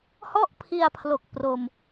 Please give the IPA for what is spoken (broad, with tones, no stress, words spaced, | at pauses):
hɔ˥˩ʔpʰi˧a̯pʰlo˨˩k̚ pro˧m